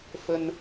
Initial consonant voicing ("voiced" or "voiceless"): voiceless